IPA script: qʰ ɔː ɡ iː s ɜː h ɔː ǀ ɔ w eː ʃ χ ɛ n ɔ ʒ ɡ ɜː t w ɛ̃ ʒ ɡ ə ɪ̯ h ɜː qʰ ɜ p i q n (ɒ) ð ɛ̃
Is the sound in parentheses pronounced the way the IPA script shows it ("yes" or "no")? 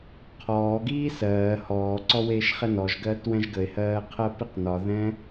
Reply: yes